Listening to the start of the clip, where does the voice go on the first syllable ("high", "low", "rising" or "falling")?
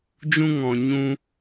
high